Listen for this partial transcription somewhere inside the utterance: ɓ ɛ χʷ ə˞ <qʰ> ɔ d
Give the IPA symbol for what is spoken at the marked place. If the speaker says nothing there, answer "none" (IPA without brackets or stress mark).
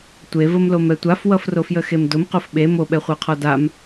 qʰ